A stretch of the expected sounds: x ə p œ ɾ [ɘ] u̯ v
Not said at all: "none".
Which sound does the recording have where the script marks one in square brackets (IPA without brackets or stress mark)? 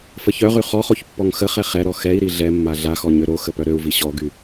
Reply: ø